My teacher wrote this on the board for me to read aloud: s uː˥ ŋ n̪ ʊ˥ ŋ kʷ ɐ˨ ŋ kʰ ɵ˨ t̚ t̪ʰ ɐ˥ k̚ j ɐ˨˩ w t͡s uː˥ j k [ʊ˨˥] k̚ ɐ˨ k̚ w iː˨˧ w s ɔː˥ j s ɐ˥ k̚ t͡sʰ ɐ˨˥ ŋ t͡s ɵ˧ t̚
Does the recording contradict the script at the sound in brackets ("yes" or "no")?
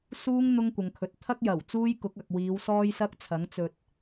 no